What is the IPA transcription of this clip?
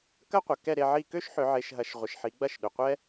kɐ˥qʷɐ˨ kɛ˥˧ɾe˥˧ʕi˥˧ kø˥ʃħʏ˨˦ʕe˨˦ʃɦɐ˨˦ʃ ʁʷɪ˨ʃħi˨˦ɡ͡bɐ˥˧ʃ ɗø˨qʷɛ˥

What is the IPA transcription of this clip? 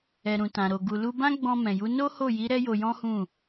ɛ˨ɾũ˨tã˨ɾo˨ ɡu˨lu˧ bã˦ɡ͡bɔ̃˧mɛ̃˨ju˨˦ no˦ho˦˨ji˨˦ ɾɛ˦jo˧jɔ̃˦hũ˦˨

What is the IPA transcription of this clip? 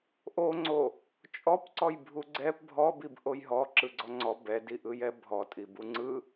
ʔoŋ͡ǀo | t͡ʃʼɔpǀɔj bʱuɡ͡ǀɛp bʱɔbib ʔojɦɔ ǁɯɡ͡ǀɔŋ͡ǀɔ bɛdi ʔɯjɛbʱɔ tʼibuŋ͡ǀɯ

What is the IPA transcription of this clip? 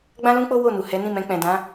ɡ͡bã˦lũ˦k͡po˦ wo˦˨nu˨ hɛ˨˦nĩ˦˨mɛ̃˧ k͡pɛ̃˨dã˨˦

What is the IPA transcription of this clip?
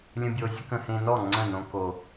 lʲə̃˦bʲo˧zʲə˦k ə̃˧hẽ˧nɔ˦˨ ŋ͡ǀə̃˦˨nõ˧ ko˨

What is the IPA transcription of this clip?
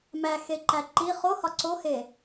mæxeǃæ ǃi χohɒ ǀohe

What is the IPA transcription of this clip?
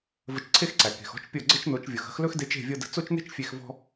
və˧t͡ʃǀʰe˦xǀæ˨ ke̤˨xɔ̤˦t͡ʃpʲɤ˦˨ ɡ͡ǀə˦t͡ʃno˨˦t͡ʃvʲɤ˨xə̤˦x lɵ˦xde˧t͡ʃe̤˦˨ vʲɤ˦ də̤˧ t͡so˦t͡ʃne̤˦t͡ʃ fʲe˧xvɔ̤˦

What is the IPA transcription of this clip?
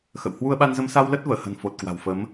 xə̰˧˨w hwu˧ə̯ɓa˧nzə˧m sa˧wlə˦˥t̚vəː˧˩hə̤˨˩n fo˨˩t̚kwa̤˨˩wfə˨˦m

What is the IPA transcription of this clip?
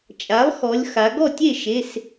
t͡ʃʼa˩˥lˠxɔ˩˧lʲ xa˩˧ ɡɔ˥˩tʲe˥˩ʃe˩˧˩s

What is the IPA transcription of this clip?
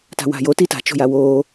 ta̤wa̤jo tita̤t͡ʃo̤ja wo

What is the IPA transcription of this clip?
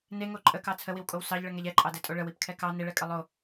neŋo ǃʼəkɑ t͡sʰəwiwkʼow sɑʎɭəŋɛʎ ɛǃʼɑdɛtʼo ɭəwipkʰɛ kɑ neɭɛkʼə lˠo

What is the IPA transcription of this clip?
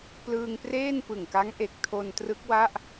plɯː˧ŋpreː˥˩n pɯ˨˩ŋka˦˥ŋ ʔe˨˩k̚tʰo˧n trɯ˦˥k̚wa˥˩ʔ

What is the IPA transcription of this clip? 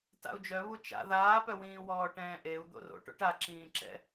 ta̰u̯d͡ʒœβu t͡ʃa̰ ðaːpœwĩː wɔːʈɛ̃ːʔeu̯ d̪o̰ro̰ʈo̰ʈ a ǁĩːǁɛ̰

